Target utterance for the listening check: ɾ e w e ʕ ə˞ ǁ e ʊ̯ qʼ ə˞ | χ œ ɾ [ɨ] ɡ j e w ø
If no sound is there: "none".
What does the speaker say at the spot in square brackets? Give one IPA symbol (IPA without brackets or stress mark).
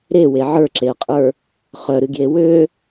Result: ɨ